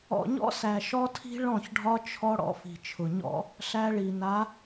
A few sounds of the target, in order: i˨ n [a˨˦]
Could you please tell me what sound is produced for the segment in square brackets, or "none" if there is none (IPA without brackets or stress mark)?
a˨˦